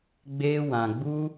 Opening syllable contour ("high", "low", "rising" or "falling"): high